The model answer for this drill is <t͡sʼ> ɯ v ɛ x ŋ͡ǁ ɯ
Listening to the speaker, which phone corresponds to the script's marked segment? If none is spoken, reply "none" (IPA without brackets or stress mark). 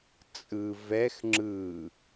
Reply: t͡sʼ